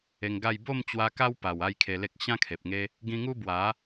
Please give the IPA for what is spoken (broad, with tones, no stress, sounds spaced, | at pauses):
e˧ ŋ ɡ a˥˧ j b o˥˧ m t͡ɕ w a˧ k a˦ w p a˨˩ w a˥˧ j kʰ e˧ l e˦ k̚ ɕ ã˦ kʰ e˨ p̚ ŋ e˦ | ɡ ĩ˧ ŋ u˦ b w a˨˦